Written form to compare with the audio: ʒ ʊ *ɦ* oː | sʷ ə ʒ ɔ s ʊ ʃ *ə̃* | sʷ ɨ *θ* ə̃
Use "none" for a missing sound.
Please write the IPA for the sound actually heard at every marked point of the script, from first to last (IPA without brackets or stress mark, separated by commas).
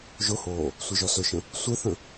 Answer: h, ə̃, θ